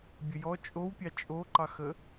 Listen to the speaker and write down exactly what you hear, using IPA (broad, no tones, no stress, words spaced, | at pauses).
bʲəjɔ t͡ʃʼowpʲɑ t͡ʃʼoǃɑxə